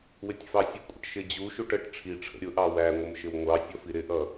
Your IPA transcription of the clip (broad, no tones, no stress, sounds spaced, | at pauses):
w ɪ tʲ f ɑ sʲ ə kʷʼ ə̰ ʈ ʃ ɪ d͡ʑ u ʃ u ʈ ə ʈ ʈ͡ʂʰ i ʈ͡ʂʰ ə̰ ɾʲ ʊ ʔ ɑ w æ ŋʷ ə m ʃ ɪ w ŋʷ ɑ sʲ ʌ f i ɾ ɪ ʔ ʌ